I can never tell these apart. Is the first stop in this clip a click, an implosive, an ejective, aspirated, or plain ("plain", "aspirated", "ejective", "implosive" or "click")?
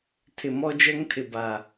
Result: aspirated